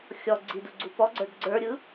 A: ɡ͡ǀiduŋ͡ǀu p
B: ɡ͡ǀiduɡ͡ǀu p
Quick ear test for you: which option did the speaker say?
B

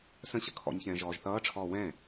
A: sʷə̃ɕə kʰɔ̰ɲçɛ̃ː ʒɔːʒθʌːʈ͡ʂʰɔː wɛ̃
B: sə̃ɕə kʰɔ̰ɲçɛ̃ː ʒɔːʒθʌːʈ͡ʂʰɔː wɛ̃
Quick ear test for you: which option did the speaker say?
B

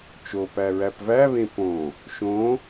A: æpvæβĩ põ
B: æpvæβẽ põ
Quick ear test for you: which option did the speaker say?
B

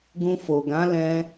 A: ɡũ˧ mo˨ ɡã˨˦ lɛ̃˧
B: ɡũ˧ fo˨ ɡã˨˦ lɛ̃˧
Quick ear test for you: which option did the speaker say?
B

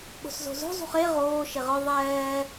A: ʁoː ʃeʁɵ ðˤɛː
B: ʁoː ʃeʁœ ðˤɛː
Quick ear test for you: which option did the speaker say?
B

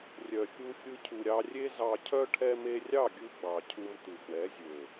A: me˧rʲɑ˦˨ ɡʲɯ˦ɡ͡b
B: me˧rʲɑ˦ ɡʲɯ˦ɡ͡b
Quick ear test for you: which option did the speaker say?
A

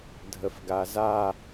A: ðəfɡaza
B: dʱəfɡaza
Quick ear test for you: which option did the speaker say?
B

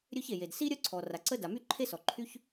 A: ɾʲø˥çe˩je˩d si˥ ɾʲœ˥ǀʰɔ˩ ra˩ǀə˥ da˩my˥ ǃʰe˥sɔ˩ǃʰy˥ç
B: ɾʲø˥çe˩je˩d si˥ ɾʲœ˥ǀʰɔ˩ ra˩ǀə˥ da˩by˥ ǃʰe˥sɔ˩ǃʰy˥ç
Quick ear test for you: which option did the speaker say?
A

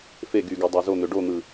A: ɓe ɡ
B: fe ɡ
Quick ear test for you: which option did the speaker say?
B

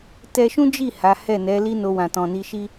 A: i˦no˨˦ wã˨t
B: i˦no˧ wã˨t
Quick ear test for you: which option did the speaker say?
B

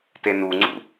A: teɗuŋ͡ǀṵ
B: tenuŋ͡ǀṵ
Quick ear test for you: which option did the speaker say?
B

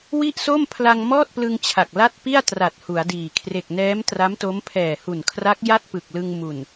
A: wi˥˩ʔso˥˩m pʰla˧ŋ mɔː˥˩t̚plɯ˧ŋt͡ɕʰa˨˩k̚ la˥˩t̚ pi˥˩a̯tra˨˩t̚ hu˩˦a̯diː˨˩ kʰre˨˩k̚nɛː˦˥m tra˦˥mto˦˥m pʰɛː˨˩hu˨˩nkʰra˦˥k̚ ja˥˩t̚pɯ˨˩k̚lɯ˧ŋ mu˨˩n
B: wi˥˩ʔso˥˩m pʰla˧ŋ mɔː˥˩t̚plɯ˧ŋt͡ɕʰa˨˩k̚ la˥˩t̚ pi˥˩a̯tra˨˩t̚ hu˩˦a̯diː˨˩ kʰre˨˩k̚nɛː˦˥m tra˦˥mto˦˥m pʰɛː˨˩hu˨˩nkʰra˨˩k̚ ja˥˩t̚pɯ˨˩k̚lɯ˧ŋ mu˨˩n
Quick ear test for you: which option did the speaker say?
A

